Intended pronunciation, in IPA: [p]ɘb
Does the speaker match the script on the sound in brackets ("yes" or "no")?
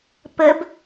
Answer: yes